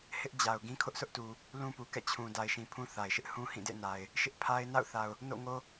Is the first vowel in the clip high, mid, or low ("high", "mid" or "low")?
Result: high